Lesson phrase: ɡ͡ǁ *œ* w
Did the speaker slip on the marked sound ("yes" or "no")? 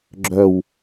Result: no